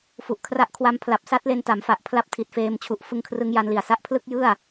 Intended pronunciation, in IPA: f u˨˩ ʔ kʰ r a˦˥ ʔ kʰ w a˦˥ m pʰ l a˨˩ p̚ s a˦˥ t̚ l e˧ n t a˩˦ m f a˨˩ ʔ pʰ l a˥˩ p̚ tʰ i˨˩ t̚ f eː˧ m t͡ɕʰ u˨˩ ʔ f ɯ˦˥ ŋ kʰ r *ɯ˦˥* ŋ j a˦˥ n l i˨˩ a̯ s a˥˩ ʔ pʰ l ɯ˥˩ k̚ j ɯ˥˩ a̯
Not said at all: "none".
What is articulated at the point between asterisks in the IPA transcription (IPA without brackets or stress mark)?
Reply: ɯ˦˥